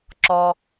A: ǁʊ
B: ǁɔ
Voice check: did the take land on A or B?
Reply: B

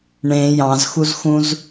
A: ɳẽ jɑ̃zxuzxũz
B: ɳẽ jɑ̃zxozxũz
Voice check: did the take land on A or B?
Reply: A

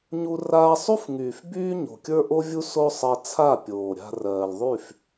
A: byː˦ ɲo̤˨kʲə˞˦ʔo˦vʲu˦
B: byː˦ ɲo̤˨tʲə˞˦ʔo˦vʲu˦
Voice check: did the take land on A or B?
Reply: A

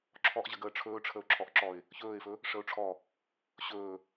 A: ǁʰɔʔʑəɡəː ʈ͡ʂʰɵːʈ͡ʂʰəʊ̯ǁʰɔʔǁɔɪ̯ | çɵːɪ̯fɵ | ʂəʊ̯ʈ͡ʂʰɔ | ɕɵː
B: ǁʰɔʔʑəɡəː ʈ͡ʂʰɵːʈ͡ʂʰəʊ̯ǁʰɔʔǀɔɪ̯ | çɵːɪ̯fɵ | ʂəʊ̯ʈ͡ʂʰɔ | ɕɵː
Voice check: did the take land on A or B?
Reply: A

